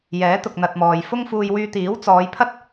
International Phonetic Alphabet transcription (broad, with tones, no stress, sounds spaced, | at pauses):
j ɛː˨˥ t̪ ʊ˨ k̚ n̪ ɐ˨ t̚ m ɔː˨ j f ʊ˥ ŋ f uː˧ j w yː˧ t̪ iː˨˥ w t͡s ɔː˨˧ j pʰ ɐ˥ t̚